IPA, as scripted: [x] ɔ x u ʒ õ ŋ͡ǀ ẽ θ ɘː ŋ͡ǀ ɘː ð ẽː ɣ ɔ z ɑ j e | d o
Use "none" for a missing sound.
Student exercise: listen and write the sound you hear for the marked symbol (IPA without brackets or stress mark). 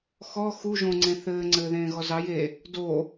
x